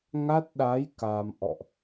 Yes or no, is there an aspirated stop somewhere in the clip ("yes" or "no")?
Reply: no